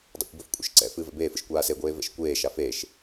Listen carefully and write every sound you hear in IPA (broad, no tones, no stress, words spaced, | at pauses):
dˤɛ̰kʷbɘfkʷʼḛʃ ǀɛ̰ fɨːvɛ̰beːfɨʃ kʷaːseɡʷeː vɛ̰ʃkʷeːʃa feʃ